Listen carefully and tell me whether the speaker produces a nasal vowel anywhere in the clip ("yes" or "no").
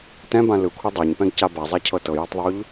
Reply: yes